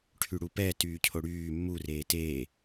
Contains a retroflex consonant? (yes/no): yes